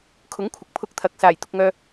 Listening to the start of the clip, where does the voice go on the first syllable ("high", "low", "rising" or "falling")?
rising